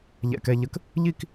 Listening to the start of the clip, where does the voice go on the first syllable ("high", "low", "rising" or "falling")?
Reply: low